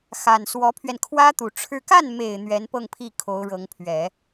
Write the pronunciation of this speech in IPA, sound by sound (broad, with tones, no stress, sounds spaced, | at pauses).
x a˨˩ n s w ɔ˧˥ pʰ ɥ ɛ˧ n kʰ w ä˥ t̪ u˨˩ ʈ͡ʂʰ ɻ̩˥˧ k a˥˩ n m e˨˩ ɪ̯ n̪ ɥ ɛ˧˥ n p ɤ˥˧ ŋ pʰ i˥˩ kʰ o˧˥ ʊ̯ ɻ ɤ˧˥ ŋ pʰ ɥ ɛ˨˩˦